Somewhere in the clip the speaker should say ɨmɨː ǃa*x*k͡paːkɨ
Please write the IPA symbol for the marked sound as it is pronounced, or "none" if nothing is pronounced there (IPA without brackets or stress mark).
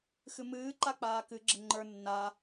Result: none